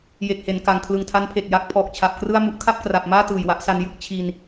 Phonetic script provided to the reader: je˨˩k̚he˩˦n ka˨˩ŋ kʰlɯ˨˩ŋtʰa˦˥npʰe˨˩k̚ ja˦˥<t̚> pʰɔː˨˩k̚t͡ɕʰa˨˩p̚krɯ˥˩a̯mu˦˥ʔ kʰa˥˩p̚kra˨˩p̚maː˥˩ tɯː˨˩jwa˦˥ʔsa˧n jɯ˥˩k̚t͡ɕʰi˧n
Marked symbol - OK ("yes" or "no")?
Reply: no